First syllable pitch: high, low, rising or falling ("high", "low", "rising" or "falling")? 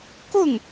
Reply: falling